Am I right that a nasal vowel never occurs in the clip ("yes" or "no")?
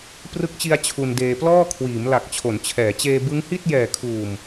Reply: yes